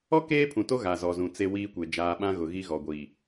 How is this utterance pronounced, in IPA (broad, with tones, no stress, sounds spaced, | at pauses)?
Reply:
ɔ˦ k eː˦ pʰ ũ˨ t o˦ ɣ a˨ z ɔ˨ z ũ˨ t͡s e˦ w iː˦ kʷ e˨ d͡ʒ aː˨ ɓ ã˦ ɣ ʊ˨ ɣ i˦ ɣ ɔ˨ ɡʷ iː˨